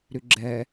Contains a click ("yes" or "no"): yes